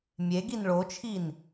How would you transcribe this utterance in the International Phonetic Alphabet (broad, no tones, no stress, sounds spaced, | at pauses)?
mʲ e ɡ i n ɭ o t͡ʃʰ i n